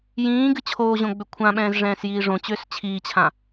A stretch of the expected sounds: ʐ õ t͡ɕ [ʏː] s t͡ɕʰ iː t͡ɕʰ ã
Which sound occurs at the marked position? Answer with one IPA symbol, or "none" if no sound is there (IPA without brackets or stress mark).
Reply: ʏː